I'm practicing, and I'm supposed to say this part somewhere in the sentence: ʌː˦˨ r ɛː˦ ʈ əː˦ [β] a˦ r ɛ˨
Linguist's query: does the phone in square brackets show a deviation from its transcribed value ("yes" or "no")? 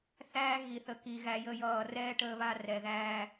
no